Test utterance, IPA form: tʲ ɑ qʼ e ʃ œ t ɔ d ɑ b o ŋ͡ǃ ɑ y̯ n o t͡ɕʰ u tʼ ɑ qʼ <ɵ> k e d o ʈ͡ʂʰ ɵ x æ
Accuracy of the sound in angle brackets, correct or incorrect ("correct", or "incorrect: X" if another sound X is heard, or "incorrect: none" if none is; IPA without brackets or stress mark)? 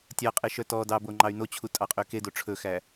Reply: incorrect: ø